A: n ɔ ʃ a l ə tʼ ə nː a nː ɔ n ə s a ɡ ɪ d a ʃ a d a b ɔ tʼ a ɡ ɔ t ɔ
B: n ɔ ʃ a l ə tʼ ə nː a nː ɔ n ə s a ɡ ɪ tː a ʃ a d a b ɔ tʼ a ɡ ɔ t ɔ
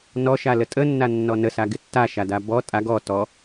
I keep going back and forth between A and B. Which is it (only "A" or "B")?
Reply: B